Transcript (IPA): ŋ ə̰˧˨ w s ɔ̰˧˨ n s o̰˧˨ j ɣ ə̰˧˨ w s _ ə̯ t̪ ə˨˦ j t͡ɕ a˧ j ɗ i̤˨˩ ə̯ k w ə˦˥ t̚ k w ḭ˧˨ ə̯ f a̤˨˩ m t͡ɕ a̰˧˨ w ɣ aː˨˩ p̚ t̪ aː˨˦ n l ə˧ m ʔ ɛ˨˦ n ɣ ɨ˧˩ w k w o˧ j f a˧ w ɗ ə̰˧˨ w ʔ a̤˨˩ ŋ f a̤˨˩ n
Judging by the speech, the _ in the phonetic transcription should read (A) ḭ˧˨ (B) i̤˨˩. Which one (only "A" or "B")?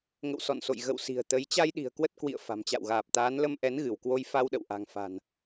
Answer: B